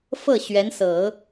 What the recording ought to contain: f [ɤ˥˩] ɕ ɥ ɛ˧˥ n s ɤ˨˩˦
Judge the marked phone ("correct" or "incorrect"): correct